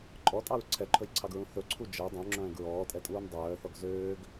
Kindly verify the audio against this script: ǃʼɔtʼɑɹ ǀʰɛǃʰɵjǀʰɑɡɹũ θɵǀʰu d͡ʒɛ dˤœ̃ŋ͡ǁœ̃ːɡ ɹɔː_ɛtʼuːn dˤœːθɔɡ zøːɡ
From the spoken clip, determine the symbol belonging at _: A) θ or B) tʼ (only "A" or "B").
B